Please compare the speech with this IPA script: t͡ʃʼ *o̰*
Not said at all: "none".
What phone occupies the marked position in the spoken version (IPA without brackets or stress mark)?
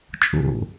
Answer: o̰